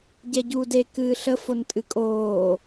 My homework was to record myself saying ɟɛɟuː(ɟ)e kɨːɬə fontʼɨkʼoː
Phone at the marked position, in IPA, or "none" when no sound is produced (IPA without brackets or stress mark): d